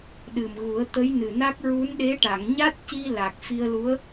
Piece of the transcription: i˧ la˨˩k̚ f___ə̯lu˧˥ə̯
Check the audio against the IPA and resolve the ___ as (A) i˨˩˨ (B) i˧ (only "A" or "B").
B